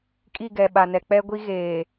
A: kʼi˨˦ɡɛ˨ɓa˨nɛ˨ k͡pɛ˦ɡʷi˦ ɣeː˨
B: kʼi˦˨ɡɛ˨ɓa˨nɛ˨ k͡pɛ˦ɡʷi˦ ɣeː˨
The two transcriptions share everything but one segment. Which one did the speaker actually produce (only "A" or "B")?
B